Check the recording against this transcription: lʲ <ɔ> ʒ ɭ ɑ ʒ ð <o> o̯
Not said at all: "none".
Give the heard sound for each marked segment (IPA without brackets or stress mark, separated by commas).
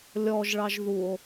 ɔ, u